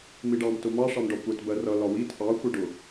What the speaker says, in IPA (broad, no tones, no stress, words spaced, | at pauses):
miɖɑm tʊmɑ ʂɑmɖɒkʷɛt bɜrʌ lɒwit ʔɑ xʷɛɖʊ